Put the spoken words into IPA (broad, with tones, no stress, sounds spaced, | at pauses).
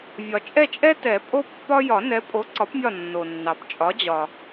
vʲ ɒ˩ t͡ʃʼ ɛ˦˨ t͡ʃʼ ɛ˦ t ɛ˨˩˦ pʼ o˦ pː ɒ˦ j ɒ˨˩˦ n ɛ˨˥ pʼ o˨˥ ǀ ɒ˨˥ p mʲ ɒ˦˨ nː o˩ nː ɑ˩ p t͡ʃʼ ɒ˨˥ d͡ʑ ɒ˩